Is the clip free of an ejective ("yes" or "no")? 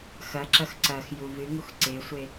yes